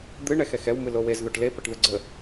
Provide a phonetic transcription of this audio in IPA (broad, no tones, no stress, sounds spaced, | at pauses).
d̪ ɨ ɳ ɛ x ɛ x ɛ w m ɨ l o w e z ð o ʈ l e p ɐ ʈ ð ɘ ɡ͡ǀ ə